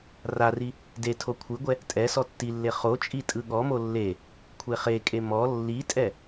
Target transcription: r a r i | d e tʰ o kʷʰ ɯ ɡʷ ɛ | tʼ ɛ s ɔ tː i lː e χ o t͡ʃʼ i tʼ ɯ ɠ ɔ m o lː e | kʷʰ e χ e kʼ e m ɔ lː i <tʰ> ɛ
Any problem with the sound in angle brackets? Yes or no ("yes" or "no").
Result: yes